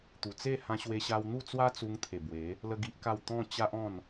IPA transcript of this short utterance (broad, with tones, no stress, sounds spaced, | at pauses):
t̪ u˨˩ t͡s e˥˧ h ã˧ ɕ w e˧ ɕ a˧ w n̪ u˥˧ t͡s w a˦ t͡s u˧ ŋ t̪ʰ e˨˩ b w e˨˦ | l ə˦ ɡ i˦ ʔ k a˥˧ w t̪ ɔ̃˥˧ t͡ɕ a˦ ʔ ɔ̃˥˧ n